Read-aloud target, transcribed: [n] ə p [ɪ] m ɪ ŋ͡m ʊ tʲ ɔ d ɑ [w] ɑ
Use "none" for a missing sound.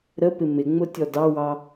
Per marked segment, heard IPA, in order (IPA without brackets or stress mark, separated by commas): ɾ, ɪ, w